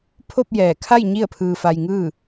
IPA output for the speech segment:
pʰ o˥˨ p̚ j ɛː˧˩ kʰ a˥˨ j ɲ i˥˨ ə̯ pʰ ɯː˧ f a˧ j ŋ ɯː˥˨

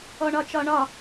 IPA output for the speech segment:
ɔ ɳ ɒ t͡ʃ ɒ ɳ ɒ

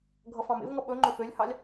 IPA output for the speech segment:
ɡʱ ʌ f ɑ̃ m ḛ v ŋ ʌ ɓ ɵ ŋ͡ǃ ø f ø lʲ h ɑ lʲ

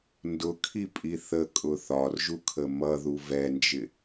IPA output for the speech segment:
n d ʊ kʰ i pʼ i θ ə kʼ ʊ θ ɒ r ʒ u kʰ ə m ʌ ð u v ɛ n d͡ʒ ɪ

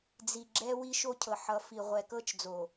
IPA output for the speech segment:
d͡z i˨ ɡ͡ǁ ɛ˦ w i˦ ʃ o˦ cʰ ɤ˨ ħ ʌ˨˦ f i˨ ʁʷ ɛ˨ k ɤ˦ t͡ʃ d͡z o˨

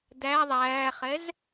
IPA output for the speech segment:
d æ ðˤ æː χ ɛ z

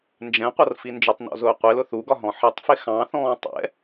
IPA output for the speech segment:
n d͡ʒ ɛ̃ qʷ ʌ r f i n d͡ʒ ʊ tˤ n ɔ̰ z ʊː qʷ ɪ l ʊ θ u ɡ ɒ ɦ ɔ̃ ħ ʌ tˤ f ɪ x ɑ̃ θ ɔ̃ː tˤ ɛ̰

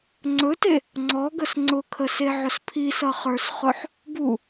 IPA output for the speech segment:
ŋ͡ǀ ɵ t e | ŋ͡ǀ ɔ ɡ ə s ŋ͡ǀ ʊ kʰ ə s e ʕ ʊ s pʰ i s ʌ χ ə˞ s χ ʊ ħ | b u

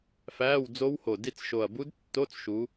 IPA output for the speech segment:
f æː˧˥˧ w d͡z o˦˥ w h o˨˩ d i˦˨ t͡s ʃ o˨˩ ɐ̯ b u˦˥ d tː o˧˥˧ t͡s ʃ u˨˦

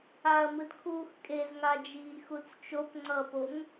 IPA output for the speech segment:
a ɐ̯ m ɯ d kʰ uː x kʼ e z ŋ a d͡ʒ iː x u t͡s t͡ʃ o p ŋ͡ǀ ʌ p o ŋ

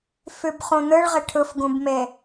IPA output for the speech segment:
f ʉ b χ ũ n̪ ɯ ɭ ʁ ɪ ʈʰ ɯ f ɡ ũ b m e

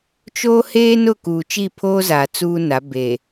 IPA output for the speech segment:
t͡ʃ oː˦ h eː˦ n ʊ˦˨ k uː˨ t͡ʃ i˦˨ pʰ oː˦ z aː˨ t͡s uː˦ n a˨˦ b e˨

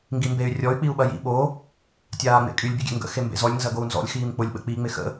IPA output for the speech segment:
ŋ ɡ i m b e y̯ rʲ ɔ y̯ k͡p i u̯ ɓ ɐ j ḭ ɓ o | tʲ aː ŋ͡m ḛ kʼ y lʲ bʲ ʊ ɡʲ ḛ ŋ ɡ ə̰ x e m b ḛ z ɔ lʲ n z ɐ ɡ o u̯ n z ɔ̰ lʲ x iː m k͡p ʊ lʲ ɓ ə̰ k͡p i ŋ͡m ɪ x ə̰

